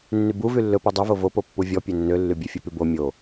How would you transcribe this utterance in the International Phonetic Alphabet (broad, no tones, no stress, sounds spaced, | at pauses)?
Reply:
nː y b u v y lː ɵ p ø dˤ u v o v o p o pː u vʲ ɔ pʲ ø nː ø lː y bʲ ø fʲ ɵ p y b o mʲ o